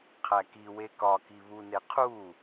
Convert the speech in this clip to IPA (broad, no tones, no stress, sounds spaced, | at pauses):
qʰ æ k i w e k ɒ k i β u n e qʰ u